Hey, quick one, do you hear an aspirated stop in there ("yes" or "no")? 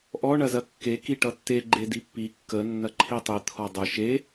yes